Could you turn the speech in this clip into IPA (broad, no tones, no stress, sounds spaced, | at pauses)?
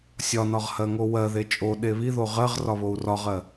sʲ ɒ n ɒ ʁ h ɜ ŋ o w ɜ ð e t͡ʃʼ o ɗ e β i ð o ʁ ɜ ʁ r ɒ β o u̯ r ɒ ʁ ɜ